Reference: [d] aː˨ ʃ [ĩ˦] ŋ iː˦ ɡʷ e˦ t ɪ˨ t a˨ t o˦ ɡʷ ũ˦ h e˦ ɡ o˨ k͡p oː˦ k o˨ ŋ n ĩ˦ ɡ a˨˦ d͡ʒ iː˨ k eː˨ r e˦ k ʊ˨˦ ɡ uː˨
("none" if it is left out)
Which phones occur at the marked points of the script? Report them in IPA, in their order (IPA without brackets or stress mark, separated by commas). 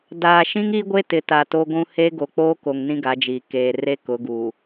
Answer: d, ĩ˦